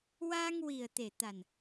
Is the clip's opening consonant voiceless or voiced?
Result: voiced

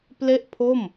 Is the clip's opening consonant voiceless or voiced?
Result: voiceless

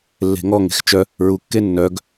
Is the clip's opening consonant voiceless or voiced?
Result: voiced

